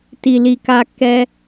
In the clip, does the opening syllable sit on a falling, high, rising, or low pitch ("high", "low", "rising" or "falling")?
low